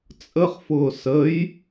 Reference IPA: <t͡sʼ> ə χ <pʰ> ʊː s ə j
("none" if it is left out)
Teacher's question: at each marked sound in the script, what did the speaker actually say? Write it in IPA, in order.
t͡sʼ, f

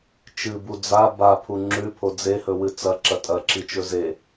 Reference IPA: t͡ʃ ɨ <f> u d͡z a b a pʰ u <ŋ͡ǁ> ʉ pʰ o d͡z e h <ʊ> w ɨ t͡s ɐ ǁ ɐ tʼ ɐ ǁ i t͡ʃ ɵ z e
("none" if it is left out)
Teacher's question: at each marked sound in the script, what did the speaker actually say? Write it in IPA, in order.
b, ŋ͡ǁ, ɵ

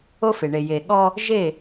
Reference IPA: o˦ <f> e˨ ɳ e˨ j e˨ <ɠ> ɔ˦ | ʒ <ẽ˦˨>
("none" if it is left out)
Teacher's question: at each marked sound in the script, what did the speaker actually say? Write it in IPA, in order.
f, ɠ, e˦˨

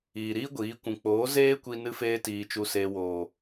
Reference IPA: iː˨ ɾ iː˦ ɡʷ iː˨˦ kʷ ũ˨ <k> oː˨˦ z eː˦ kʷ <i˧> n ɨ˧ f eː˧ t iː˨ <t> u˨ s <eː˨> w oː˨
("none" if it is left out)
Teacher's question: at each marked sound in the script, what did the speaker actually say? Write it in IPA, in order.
k͡p, i˧, t͡ʃ, eː˨

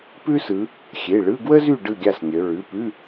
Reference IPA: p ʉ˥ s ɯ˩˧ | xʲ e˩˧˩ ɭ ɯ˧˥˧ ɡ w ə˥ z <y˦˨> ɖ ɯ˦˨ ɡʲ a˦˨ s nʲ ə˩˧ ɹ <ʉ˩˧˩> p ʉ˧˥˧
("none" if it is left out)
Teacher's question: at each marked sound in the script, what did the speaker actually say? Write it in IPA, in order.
y˦˨, ʉ˩˧˩

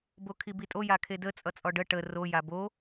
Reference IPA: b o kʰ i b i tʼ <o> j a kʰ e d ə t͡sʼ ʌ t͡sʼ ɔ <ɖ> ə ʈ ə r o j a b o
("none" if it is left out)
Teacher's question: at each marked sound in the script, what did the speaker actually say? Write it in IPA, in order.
o, ɖ

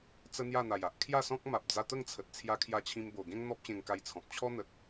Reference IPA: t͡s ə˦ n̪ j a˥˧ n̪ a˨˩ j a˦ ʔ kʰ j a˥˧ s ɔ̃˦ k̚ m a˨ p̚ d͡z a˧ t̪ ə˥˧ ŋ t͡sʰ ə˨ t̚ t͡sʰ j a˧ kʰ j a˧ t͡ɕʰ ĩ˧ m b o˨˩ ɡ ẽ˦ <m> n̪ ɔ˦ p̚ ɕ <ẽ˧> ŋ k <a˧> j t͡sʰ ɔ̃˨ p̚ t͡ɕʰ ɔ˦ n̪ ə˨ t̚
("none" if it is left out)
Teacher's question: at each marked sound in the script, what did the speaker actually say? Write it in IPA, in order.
ŋ, ẽ˧, a˧

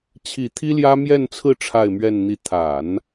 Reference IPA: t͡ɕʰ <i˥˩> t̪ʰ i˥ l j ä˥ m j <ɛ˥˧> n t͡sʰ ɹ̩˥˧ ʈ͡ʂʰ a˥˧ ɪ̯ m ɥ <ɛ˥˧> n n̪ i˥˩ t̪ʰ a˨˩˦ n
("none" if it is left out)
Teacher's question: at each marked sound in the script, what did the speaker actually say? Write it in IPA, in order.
i˨˩, ɛ˥˧, ɛ˥˧

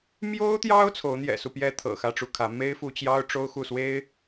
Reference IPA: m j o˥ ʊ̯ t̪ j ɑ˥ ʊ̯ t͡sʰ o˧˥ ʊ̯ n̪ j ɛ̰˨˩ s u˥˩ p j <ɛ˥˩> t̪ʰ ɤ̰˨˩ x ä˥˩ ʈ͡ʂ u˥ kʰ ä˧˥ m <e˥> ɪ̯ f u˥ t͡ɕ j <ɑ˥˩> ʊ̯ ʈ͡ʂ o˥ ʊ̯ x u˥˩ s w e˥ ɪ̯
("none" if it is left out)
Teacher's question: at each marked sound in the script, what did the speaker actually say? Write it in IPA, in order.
ɛ˥, e˥, ɑ˥

